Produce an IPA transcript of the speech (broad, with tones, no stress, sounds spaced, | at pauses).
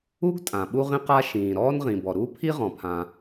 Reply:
u˥ ɡ tʼ ã˩ ɓ u˥ ʁ ĩ˥ q a˥ ʃ ĩː˩ ɾ ɔː˥ n ʁ ĩ˩ b ɔ˩ ɾ u˥ pʰ i˥ ʁ ɔ̃˩ pʰ ã˩